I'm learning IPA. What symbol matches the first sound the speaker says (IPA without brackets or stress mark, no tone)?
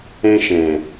ɛ̃